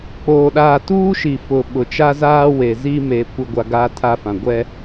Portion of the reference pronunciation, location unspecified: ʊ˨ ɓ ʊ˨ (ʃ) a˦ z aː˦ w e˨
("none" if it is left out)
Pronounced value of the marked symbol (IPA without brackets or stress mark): t͡ʃ